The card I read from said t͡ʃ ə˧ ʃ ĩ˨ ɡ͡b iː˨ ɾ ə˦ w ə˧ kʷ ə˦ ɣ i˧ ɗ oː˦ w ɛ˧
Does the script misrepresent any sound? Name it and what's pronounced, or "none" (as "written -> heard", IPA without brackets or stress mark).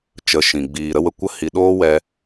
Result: ɣ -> h